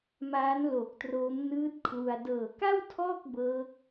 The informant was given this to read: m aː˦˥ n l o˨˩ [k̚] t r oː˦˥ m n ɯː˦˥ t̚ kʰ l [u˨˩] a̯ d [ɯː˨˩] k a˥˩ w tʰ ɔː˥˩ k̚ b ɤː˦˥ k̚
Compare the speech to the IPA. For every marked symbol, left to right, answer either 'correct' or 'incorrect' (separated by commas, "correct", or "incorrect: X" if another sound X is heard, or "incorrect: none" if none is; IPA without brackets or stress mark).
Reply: correct, incorrect: u˧, incorrect: ɤː˨˩